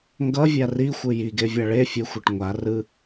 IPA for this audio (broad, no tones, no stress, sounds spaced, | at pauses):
ŋ ɡ ʌ vʲ a r i xʷ ɯ j i ɡ e vʲ a ɭ e fʲ e xʷ e ʈ ŋʷ a r ɯ